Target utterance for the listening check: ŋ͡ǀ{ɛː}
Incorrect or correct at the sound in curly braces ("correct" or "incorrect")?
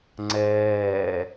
correct